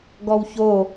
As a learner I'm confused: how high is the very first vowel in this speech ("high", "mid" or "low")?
mid